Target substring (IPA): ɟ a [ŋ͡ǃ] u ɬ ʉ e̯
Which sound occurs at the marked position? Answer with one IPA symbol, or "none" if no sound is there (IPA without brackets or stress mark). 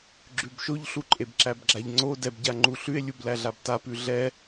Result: ŋ͡ǃ